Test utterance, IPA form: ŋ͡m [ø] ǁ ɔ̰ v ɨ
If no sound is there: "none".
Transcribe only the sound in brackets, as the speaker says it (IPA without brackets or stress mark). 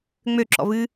ø